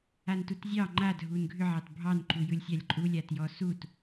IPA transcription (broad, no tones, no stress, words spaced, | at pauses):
antutzʲɑ ŋ͡ǃadʱun ɡʱʏʕɑt bʱɑnǃujɯlʲ sʲalʲǃʼulʲa tjɔsut